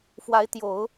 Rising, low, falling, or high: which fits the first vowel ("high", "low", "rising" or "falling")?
rising